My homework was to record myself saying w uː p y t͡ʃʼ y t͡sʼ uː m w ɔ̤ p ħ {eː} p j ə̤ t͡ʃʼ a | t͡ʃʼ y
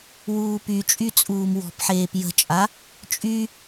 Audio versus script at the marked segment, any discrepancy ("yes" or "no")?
no